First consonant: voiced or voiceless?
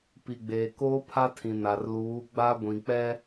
voiceless